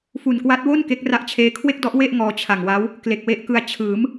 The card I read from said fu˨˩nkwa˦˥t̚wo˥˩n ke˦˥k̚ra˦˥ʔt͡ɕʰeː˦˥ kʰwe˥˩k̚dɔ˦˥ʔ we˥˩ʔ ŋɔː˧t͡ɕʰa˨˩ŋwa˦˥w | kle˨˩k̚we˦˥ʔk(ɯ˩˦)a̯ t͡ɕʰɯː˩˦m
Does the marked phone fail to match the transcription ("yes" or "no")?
yes